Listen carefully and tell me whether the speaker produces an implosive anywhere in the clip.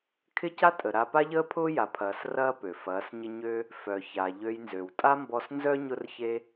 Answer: no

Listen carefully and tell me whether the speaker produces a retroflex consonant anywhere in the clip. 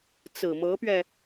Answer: no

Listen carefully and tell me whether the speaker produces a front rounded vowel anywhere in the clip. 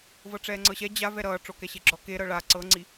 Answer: no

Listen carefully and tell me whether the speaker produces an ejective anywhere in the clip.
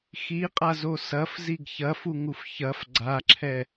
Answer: yes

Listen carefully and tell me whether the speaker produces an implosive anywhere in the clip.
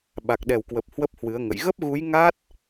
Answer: yes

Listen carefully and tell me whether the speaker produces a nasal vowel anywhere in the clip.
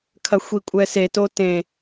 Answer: yes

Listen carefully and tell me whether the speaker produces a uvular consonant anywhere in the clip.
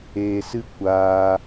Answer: no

